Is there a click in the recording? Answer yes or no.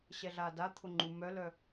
yes